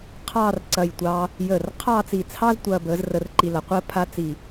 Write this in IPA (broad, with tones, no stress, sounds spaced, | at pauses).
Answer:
qʰ ɑː˥˧ r ǀ ɐ˧˩ j tʷ ɑː˧ | j əː˧˩ r qʰ ɑ˥˧ t͡s i˧˩ t͡sʰ ɑ˥ z tʷ ɐː˧ b əː˩˧ z r ə˧ r ǃ i˧ l ɐ˩˧ qʷ əː˥ pʰ a˥ t͡s i˧˩